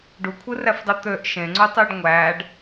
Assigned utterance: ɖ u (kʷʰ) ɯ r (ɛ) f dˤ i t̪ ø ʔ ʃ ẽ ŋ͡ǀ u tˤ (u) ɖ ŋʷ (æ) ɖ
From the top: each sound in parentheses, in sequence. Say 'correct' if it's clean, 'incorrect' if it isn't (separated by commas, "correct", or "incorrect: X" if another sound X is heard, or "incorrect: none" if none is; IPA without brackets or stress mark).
correct, incorrect: æ, incorrect: y, correct